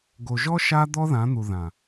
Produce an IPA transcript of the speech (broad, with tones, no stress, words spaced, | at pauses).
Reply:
ɡo˨ʒɔ˦ ʃa˦ d̪ɔ˦ðã˨˦n̪u˨ ðã˨